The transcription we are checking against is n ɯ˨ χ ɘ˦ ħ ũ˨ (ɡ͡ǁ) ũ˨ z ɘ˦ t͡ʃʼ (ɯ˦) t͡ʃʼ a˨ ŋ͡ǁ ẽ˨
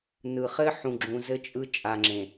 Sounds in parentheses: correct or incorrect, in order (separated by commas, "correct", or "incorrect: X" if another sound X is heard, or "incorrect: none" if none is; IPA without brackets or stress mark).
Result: correct, correct